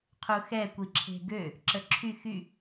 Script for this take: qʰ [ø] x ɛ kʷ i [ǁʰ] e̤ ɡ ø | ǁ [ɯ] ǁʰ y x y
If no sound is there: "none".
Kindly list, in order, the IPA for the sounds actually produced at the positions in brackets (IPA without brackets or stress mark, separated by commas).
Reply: u, ǁʰ, ə